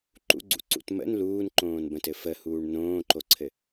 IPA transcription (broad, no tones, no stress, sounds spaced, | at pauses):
ǃ ṵ ɡ͡ǀ ṵ ǀ ṵ t m ə̰ n l uː n ǃ õː n b ə̃ t ɘ f ə h uː ɳ n õː ǃ o ǀʰ ɘ